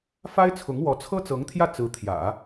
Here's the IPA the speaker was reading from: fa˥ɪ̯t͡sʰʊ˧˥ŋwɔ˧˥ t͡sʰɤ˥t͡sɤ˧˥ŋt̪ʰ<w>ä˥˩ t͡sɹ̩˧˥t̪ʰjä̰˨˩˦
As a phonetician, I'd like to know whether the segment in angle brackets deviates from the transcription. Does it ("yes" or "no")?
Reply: yes